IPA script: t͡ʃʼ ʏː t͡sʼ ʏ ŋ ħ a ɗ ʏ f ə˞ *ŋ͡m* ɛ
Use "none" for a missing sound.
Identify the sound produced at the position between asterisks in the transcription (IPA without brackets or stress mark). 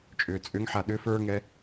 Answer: ŋ